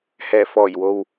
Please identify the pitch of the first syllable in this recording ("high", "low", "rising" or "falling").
low